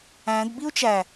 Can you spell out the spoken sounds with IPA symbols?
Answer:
æ̃d biu̯t͡ʃæ

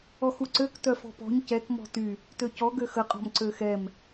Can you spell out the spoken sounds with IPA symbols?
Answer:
ɔxuǀøk tœfɔ̤pɔ̤ɲ cɛk mɔ̤ty | tøcɔ ɡøxəqʼɔ̤m ǀøxɛm

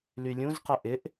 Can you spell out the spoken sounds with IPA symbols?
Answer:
lylʲũzqɘ ʔɪʔ

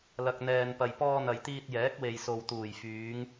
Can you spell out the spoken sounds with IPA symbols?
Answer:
lɐ˨k̚n̪ɛː˨npɐ˨j pɔː˧n̪ɐ˨jt̪iː˧t̚ jɛː˨˥k̚we˨jso˨w t̪uː˨˩jfyː˨˧ŋ

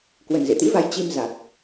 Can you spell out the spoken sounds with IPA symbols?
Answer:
kwə˨˩nzḛ˧˨t̪ḭ˧˥va˨˦j t͡ɕi˧mza˨˩k̚

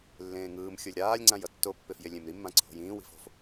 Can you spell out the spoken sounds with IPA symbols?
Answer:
lːẽːŋɯːmxʲolʲ ɾaːlʲŋ͡ǀãj ʌtːopːef jelʲẽmɾimːã ǀʰo̤jĩːwi̤f o̤f

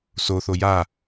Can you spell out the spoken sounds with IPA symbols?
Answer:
soθo ja

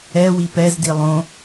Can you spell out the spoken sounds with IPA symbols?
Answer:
ɛ wipɛz dilˠõ

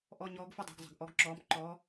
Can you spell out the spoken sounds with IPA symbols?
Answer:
ʔɔ˧˥˧ɲɔː˧˥ɡfə˧˥˧dˤi̤˩˧ɡ zˤə̤˩˧ɡ ʔɔ˧˥ɡǁɔː˧˥m ǃɔ˧˥

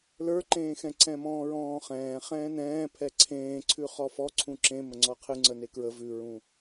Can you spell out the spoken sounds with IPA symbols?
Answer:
lə˞ǃẽːxɛ̃ ǀɛ̃mɔ̃ːɹɔ̃ːχɛ̃ː χɛ̃ːnɛ̃ːpʰɛ ǀʰẽːǀʰʉ χɔfɔ ǀʰũǁẽ məŋ͡ǀɔqʰɨ ŋ͡ǀənekɹə vʉɹũ

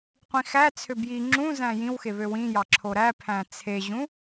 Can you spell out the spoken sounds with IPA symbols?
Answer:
qʷĩxæt͡sʰø bji ŋ͡ǁũ zæ̃jĩwxe βøwĩjɑ ǁʰoɾæpʰæ̃ t͡sʰeʑũ

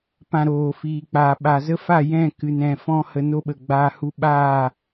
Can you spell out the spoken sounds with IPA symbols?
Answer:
pã˧ɾoː˨fiː˨k͡paː˨ ɓa˨zə˦fa˦˨ jɛ̃˦˨kɨ˨nɛ̃˨ fɔ̃˦hə˧no˦ɓə˨ ɡ͡baː˧ hu˧ɓaː˦˨

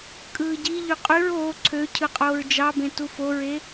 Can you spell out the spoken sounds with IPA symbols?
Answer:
kʼɯːɟiʎy qʼyɹ oː ǀʰø cʰɯqʼoːɹd͡ʒɑbẽ tufoɹe

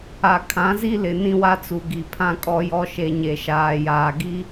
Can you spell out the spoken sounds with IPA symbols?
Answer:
a˨kʰã˨˦zi˦ lɪ˨nĩ˦wa˦t͡su˨ ɡi˨pʰã˦kʼɔ˦jɔ˦ ʃe˨ ɲe˨ʃaː˨jaː˨ ɡi˦

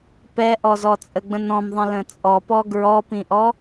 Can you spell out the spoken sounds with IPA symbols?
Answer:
pɛʔɔzɔ t͡sʼəɡ͡bə̃nɔ̃mðˤə̃ lə̃t͡sʼɔ pɔɡɹɔpĩʔɔ

